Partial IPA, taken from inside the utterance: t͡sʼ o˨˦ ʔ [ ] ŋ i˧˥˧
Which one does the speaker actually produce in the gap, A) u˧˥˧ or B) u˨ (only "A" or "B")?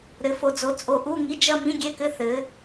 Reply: A